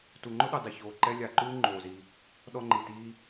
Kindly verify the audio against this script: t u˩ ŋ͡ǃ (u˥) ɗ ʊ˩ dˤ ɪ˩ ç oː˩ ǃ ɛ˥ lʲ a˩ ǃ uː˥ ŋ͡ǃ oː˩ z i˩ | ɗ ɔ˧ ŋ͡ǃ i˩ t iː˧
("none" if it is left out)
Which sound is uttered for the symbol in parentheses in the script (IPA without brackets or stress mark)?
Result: ʊ˥